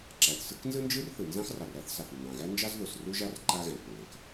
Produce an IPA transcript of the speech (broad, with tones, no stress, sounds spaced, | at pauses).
ǁ æ˩ θ s ɯ˥ k n z ɯ˥ n d͡ʒ ɯ˥ r θ ɯ˩ n z ɑ̃˥ x r ɑ˩ r æ˥ θ s ɑ˩ θ nː ɑ̃˩ ɣ æ˥ n d͡ʒ ɑ˥ z ð o˩ s r u˥ ʒ a˥ r ǃ a˥ ɣ æ̃˩ k ŋ ɡ æ̃˩ k